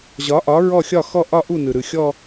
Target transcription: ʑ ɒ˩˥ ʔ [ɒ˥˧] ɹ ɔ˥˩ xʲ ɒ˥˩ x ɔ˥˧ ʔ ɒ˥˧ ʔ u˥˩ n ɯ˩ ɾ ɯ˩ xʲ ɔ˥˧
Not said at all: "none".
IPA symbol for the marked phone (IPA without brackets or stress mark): ɒ˩˥